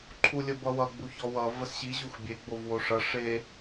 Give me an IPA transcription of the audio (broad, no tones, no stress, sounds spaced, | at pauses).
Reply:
ǃʰ u lʲ ə b ʌ w ʌ ɡ͡b u ç ɔ w ʌ v ə s ɕ i ʑ u x bʲ e ɡ͡b o v w o ʂ ʌ ʂ e